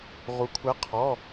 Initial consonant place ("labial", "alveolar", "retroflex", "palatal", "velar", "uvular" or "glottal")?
uvular